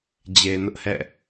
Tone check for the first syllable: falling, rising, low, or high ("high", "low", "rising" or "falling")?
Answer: low